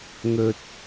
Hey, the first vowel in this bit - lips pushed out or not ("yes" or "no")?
yes